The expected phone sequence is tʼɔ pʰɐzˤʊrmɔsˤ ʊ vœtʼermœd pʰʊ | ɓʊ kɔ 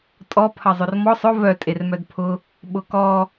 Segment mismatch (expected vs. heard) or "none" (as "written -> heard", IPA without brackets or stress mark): none